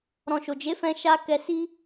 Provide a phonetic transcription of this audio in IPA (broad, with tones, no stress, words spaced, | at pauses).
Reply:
ɾɔ̃˨ʃo˨d͡ʒe˨˦ fɛ̃˧ʃa˧ kɛ˨si˧